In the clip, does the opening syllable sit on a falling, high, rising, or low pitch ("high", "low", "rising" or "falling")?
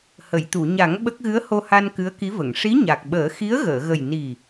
low